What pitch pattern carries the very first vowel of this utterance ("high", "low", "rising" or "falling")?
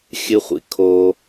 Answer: high